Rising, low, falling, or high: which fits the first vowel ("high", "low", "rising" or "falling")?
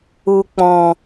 low